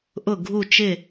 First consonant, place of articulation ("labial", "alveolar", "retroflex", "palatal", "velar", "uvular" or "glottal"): glottal